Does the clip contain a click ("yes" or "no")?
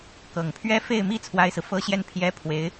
no